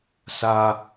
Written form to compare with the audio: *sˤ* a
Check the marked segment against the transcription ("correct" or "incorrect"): incorrect